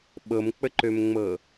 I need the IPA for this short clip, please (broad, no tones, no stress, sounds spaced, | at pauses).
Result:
ɓ ɤ m k͡p ə ǃ ø m ŋ͡m ɤ